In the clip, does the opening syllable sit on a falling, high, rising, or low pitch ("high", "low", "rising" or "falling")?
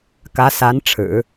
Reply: rising